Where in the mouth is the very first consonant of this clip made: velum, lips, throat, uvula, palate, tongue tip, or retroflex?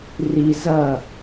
tongue tip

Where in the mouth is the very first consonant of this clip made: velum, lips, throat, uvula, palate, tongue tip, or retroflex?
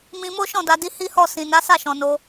lips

